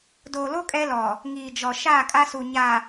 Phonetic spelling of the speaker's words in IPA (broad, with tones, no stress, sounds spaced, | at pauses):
d oː˨ l o˦ kʼ ɛ˦ l ɔ˨ | ŋ iː˨ d͡ʒ ɔ˨ ʃ aː˦˨ kʼ a˦ s u˨ ɲ a˨